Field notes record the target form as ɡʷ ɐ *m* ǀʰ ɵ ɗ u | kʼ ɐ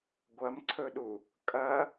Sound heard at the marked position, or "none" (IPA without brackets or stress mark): m